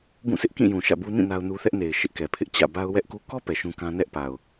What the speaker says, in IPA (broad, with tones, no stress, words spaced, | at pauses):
bũ˦˨sɪ˦ʔkĩ˦˨ jũ˨ʃä̰˦˨bu˦ nĩ˦˨ na˦ʊ̯nu˦ θɛ˦ʔne˨ɪ̯ ʃɪ˦ʔkɛ˨pʰɪ˦ʔ t͡ɕä̰˦˨ba˦ʊ̯ wɛ˦ʔku˦ kɔ˦ pɛ˨ʃũ˦kã˦ nɛ˦ʔpa˨ʊ̯